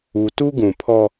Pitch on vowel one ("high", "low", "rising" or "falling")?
low